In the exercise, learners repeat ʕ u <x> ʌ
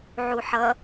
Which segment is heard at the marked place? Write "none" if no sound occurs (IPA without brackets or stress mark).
ħ